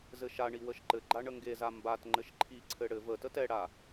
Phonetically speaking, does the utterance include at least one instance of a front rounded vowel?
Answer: no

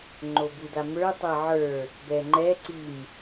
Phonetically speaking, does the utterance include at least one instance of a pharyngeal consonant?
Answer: yes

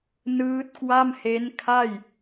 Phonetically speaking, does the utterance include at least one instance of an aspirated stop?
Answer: yes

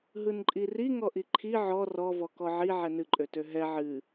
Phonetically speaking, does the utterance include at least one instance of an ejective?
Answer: yes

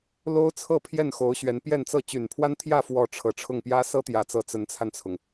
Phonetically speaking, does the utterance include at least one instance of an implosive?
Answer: no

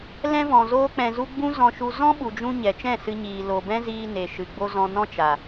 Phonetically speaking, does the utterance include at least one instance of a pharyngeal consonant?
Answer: no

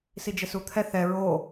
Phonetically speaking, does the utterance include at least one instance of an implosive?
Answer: no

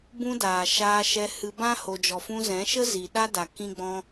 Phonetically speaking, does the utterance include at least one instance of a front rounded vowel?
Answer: no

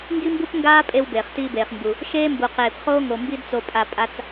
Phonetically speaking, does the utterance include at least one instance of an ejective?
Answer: yes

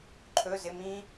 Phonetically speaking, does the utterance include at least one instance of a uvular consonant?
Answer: no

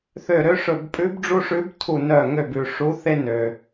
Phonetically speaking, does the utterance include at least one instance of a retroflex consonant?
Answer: yes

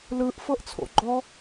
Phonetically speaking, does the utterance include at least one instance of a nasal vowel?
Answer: no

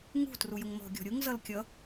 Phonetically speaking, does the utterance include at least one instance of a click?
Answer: no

